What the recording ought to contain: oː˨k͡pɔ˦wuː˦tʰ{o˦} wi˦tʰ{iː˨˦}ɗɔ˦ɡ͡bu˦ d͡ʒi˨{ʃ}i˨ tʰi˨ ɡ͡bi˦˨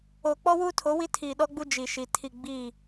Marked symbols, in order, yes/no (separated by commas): no, no, yes